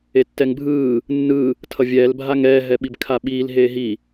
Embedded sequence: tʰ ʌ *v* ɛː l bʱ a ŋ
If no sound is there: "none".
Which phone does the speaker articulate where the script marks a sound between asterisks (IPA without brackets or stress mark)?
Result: vʲ